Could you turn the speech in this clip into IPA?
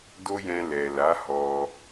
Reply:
d o˦ j ɛ̃˧ l ɛ˨ l a˨˦ h ɔ˧

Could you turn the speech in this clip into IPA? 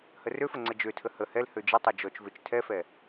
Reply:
h ə r ø f ə ŋ͡ǀ ə d͡ʒ ø tʰ ə h ə h ɛ l h ø d͡ʒ ə tˤ ø d͡ʒ ɔ t͡ʃ v ø t͡ʃ tʰ ɛ f ɛ

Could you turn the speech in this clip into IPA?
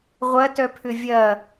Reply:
ʁʷ ɐ t œ pʰ ʏ vʲ ɐ

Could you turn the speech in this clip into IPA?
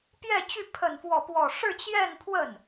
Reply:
p j ɛ˥˧ t͡ɕ y˥˧ pʰ ə˥˧ n f w ɔ˥˧ p w ɔ˥˧ ʂ ɻ̩˥˧ t͡ɕ j ɛ˥˧ n pʰ w ə˥˩ n

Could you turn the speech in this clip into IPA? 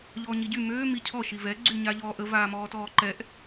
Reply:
ʎ ɔː ɲ i ɟ y m øː m i cʰ ɔ ʃ i v ɛ ɡ͡ǀ y ɲ a ʎ ɔː ʔ ə v aː m ɔː t ɔː ǃ ɛ ʔ

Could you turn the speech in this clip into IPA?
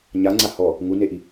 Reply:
ɲ a ŋ͡ǀ a h ɔ | ŋ u n e ʔ i

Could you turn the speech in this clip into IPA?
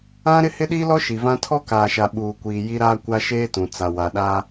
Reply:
ã˦ ɾ ɪ˦ h ɪ˦ ɗ iː˦ l ɔ˦ ʃ i˨ v ã˦ tʰ ɔ˦ k aː˨ ʃ a˨ ɓ uː˨ kʷ iː˨ j i˦ ɾ aː˦ kʷ a˦ ʃ eː˦ t ũ˨ t͡s a˨ w a˨ ɗ aː˦

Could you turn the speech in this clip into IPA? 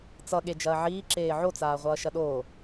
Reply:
t͡s ʌ ɠ e d͡ʒ ɐː ʕ iː ǁ eː ʕ o t͡s aː ʁʷ ʌː ʃ ɐ ɗ oː

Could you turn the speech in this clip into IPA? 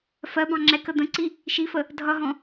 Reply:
f ɜ b ɑ̃ ŋ͡ǁ ɛ k ə d̪ ə̃ ǀ i | ʃ i f ə | dʱ ʌ ɦ ɔ̃

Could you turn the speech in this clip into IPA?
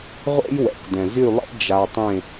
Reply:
ʁʷ ḛ˦ j w ɛ̰˨ k d ɛ̃˨ z y˦˨ lˠ ḛ˦ d͡ʒ a˧ tˤ ẽ˦˨

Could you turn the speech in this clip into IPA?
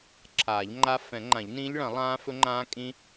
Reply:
ǁʰ aː˨˩˦ ʎ ŋ͡ǃ a˦˥ f ɛ̃˨˩˦ ŋ͡ǃ ã˨˩˦ ʎ n ĩː˦˥ ʎ ɭ ɐ̃˨˩˦ lˠ ãː˦˥ f ɵ˦˥ ŋ͡ǃ ãː˦˥ kʼ ĩ˦˥

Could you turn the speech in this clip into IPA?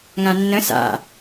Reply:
ŋ ã nː ə̃ s a̰

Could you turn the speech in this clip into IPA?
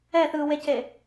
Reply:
ɛ θ ɯː w e c e

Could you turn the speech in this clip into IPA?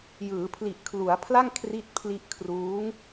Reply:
j ɯː˩˦ pʰ l i˨˩ ʔ kʰ l u˩˦ a̯ pʰ l a˥˩ ŋ kʰ r i˥˩ t̚ pʰ l i˥˩ ʔ kʰ r uː˦˥ ŋ

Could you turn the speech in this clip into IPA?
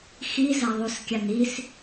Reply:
x i z a ðˤ u s kʲ a n i s

